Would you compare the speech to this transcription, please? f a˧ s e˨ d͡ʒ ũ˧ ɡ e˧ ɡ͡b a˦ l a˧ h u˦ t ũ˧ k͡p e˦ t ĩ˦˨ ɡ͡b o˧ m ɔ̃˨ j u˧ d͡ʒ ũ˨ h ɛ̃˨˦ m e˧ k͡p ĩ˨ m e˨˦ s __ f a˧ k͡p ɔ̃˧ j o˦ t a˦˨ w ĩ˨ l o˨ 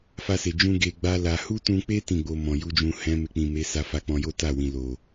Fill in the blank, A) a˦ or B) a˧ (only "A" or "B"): B